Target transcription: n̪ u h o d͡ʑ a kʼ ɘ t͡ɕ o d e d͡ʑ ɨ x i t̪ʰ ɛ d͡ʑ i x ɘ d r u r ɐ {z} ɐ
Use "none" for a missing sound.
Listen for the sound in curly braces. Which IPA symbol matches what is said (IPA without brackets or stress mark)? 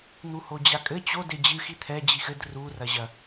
ʑ